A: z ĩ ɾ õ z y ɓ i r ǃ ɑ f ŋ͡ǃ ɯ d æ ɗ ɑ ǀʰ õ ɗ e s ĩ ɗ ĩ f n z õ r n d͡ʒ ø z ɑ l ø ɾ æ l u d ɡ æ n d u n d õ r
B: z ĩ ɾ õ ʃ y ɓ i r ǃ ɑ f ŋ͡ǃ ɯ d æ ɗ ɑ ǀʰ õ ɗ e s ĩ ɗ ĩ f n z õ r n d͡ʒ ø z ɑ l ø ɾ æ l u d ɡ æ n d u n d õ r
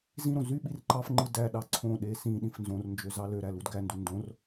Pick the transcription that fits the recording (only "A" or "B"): A